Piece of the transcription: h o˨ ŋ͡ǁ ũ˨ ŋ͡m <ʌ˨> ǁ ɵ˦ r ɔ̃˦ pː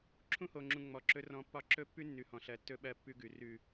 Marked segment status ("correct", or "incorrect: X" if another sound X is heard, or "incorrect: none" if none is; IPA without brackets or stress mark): incorrect: ɔ˨